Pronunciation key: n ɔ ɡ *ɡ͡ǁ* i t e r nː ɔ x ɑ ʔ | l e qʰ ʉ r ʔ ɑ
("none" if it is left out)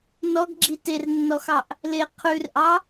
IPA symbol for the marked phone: ɡ͡ǁ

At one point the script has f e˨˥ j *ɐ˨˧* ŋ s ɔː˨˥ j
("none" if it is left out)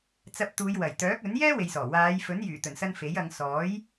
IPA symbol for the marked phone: ɐ˨˧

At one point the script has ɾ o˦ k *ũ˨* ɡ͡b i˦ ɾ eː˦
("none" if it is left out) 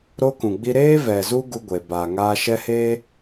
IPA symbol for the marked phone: ũ˨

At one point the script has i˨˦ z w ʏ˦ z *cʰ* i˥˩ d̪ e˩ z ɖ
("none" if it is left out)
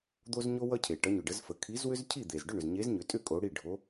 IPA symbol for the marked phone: cʰ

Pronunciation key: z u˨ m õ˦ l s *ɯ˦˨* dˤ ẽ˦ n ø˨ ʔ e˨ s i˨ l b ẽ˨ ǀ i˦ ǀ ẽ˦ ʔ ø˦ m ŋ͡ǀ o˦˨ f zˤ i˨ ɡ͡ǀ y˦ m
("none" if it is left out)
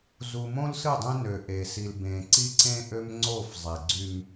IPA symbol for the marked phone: ɯ˦˨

